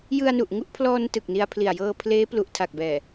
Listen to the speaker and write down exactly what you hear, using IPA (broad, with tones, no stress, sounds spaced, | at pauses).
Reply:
j ɯ˧ a̯ n u˨˩ ʔ ŋ u˥˩ ʔ pʰ l ɔː˧ n t ɯ˨˩ k̚ n i˧ a̯ pʰ l i˨˩ a̯ j ɤː˧ pʰ l eː˦˥ p l u˨˩ ʔ tʰ a˨˩ k̚ b ɛː˨˩